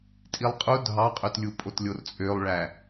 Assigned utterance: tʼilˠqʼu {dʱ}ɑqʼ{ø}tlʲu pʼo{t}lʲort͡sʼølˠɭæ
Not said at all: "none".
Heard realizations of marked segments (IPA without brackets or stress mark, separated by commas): dʱ, ø, t